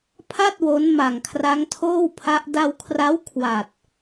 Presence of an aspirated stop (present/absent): present